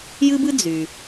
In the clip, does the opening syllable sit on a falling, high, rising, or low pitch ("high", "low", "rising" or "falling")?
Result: high